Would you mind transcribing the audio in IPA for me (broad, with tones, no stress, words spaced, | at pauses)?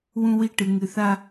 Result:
wũ˦wi˦ʈɨ˨ ŋɨ˨θa˦